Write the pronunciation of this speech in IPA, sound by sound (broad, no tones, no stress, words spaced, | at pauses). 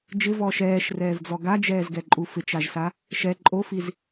d͡ʒɪvɔːʃ ɛːʃrɛːvd͡zɔ ɡad͡ʒɛːzɡɛǃʼu fɪt͡ʃaʒsa | ʃɛ ǃʼofiz